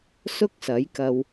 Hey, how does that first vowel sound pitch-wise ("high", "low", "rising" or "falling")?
high